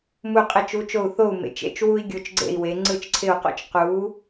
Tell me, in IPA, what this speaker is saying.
mu˥˩qʼɪ˥˩t͡ʃu˧˥˧t͡ʃo˥˩u̯ θo˥˩u̯mḛ˩˧t͡ʃḛ˧˥˧t͡ʃ wu˥i̯ ɡʲo˧˥˧t͡ʃɡ͡ǀḛ˥˩i̯we˩˥ ŋ͡ǀɯ˥˩t͡ʃǀʰɪ˥˩u̯qo̰˥t͡ʃ qu˩˥

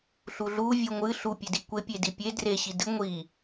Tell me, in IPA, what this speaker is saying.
ɬuɮu vʲuŋʷɨ ɬu pʲedikʷe pʲedipʲe dre ɕidɨ ŋʷi

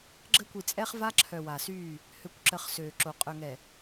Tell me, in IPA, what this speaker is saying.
ɡ͡ǁə˦kʷi˨t͡sʼɛ˦χ va˦ǁʰœ˨ wa˨syː˦˨ | hø˨kʷǁə˨χ søː˨ǁo˨ qʼœ˨ŋɛ˨

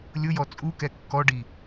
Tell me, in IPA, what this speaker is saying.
lʲʊjɔ t͡sʼu kɛkːɔɖi

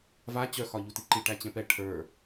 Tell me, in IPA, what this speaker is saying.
va t͡ɕœxɒʎu tiǃi ʈæt͡ɕɛ̃pɛ ʈʰə˞

